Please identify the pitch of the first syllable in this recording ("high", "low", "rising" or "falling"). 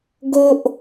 high